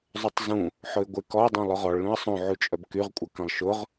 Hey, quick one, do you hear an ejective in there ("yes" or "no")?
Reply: yes